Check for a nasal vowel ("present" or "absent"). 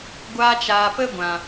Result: present